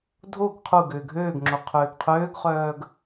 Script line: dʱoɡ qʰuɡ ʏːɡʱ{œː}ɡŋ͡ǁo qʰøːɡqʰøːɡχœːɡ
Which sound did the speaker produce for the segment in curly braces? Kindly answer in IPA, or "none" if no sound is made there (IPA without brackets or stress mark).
øː